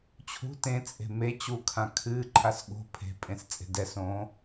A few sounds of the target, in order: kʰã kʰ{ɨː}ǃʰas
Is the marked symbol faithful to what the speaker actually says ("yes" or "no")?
yes